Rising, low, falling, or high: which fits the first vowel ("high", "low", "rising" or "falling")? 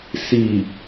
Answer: low